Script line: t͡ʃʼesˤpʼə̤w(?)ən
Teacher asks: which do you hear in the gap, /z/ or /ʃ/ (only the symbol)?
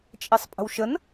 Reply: ʃ